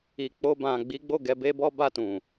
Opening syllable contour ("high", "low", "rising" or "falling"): low